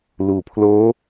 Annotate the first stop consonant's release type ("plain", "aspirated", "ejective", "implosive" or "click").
aspirated